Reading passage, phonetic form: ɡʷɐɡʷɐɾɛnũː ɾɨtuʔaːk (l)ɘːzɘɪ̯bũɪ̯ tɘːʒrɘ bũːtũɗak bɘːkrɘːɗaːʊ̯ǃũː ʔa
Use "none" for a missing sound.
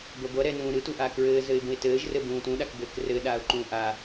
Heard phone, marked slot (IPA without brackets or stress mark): ɹ